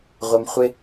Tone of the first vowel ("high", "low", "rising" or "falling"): high